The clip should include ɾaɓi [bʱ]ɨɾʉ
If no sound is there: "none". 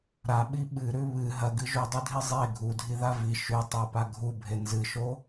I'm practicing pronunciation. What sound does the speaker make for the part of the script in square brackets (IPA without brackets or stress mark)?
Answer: ɓ